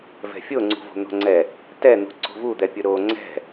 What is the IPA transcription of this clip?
v ɛ̤ fʲ o ŋ͡ǀ ṳ v o̤ n̪ o̤ ŋ͡ǀ ɛ | t ɛ n̪ ṳ ǀ o̤ v u d̪ ɛ pʲ ʊ ɾ o ŋ͡ǀ ɛ̤

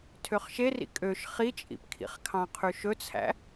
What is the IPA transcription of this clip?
tʰ ø χ ʃ e r ḭ kʼ ø ʃ χ i t͡ʃʼ ḭ p kʰ ḭ χ kʰ ɑ̃ qʰ ʉ ʃ ɵ t͡sʰ æ̰

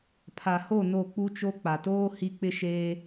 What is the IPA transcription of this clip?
pʰ a˨ h o˦˨ n o˦˨ k͡p u˦ t͡ʃ o˦ k͡p a˨ t oː˦ h i˦ k͡p ɪ˦ ʃ eː˦

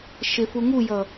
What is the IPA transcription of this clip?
ʃ ɪ f u ŋ u j ʌ

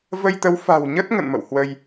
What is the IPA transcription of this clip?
v ə˧ j t̪ ə˨˦ w f a̤˨˩ w ɲ ə˦˥ t̚ ŋ ə̰˧˨ n m ə̰˧˨ w h w ə˧ j

